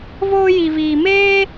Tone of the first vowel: high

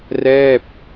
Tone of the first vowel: falling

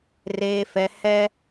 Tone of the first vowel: high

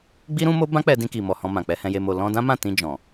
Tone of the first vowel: high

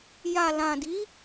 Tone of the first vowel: low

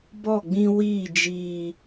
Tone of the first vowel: falling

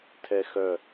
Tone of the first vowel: high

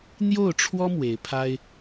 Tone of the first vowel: falling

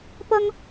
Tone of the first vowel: high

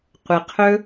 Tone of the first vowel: low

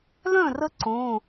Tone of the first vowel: falling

